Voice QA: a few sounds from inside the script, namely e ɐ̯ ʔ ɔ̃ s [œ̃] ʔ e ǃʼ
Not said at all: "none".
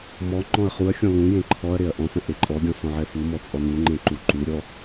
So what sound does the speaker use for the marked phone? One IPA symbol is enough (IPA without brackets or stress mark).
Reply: ə̃